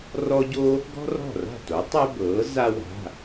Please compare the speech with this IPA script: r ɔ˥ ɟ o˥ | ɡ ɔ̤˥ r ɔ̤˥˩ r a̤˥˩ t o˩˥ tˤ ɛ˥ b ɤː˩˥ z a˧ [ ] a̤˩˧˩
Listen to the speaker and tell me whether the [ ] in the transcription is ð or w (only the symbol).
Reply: w